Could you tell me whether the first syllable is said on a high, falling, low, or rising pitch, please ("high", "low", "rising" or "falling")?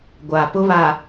low